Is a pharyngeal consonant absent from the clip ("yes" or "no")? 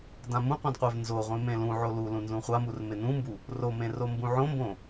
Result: no